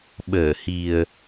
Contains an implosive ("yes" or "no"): yes